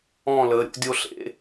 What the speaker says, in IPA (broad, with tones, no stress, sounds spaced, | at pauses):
ɔ̃˥˨ l ə˨˥ ɾʲ o̰˨˥ dʲ o˦ ɬ ḛ˨˥